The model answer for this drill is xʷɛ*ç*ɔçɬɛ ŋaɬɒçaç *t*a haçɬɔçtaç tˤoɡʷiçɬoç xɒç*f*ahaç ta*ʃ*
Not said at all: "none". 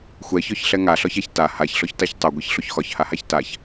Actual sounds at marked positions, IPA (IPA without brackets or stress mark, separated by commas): ç, t, h, ç